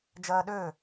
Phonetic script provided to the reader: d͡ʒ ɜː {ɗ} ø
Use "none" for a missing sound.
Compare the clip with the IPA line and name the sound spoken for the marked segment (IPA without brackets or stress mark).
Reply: ɗ